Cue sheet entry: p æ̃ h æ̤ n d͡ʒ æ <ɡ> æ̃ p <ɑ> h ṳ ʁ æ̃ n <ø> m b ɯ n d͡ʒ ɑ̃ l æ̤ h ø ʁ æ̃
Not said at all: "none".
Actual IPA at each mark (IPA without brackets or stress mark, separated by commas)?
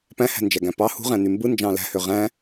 ɡ, ɑ, y